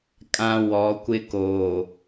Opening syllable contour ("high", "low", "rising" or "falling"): low